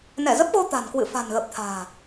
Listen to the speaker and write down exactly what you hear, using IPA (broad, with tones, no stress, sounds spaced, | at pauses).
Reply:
n ɛ˧˩ z ə˦˥ p̚ ɣ o˧ t̪ a̤˨˩ n k w ɨ̰˧˨ f a̤˨˩ n ɣ ə˨˩ p̚ t̪ʰ a̤ː˨˩